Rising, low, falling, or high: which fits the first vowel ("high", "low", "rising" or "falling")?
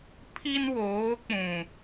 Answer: high